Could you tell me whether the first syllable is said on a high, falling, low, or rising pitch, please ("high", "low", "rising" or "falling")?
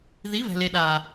rising